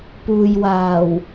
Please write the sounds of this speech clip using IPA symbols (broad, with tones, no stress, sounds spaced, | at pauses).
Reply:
p uː˨ j w aː˨˩ w